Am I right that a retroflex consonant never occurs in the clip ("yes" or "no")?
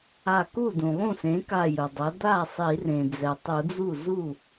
yes